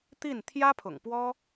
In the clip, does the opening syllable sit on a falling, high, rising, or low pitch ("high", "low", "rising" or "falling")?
falling